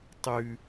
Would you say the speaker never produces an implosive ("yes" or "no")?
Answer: yes